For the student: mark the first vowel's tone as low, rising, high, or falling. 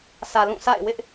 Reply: low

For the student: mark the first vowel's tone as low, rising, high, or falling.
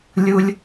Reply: low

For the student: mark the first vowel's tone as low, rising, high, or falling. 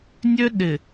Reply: high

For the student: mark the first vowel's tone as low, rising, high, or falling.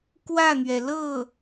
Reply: falling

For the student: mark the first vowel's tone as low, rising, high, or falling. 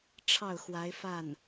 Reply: falling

